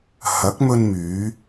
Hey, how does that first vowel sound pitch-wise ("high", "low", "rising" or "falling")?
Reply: rising